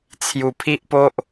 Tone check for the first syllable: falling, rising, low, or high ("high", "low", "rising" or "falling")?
low